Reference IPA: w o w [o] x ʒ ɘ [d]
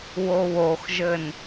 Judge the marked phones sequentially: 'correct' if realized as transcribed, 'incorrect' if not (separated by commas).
correct, incorrect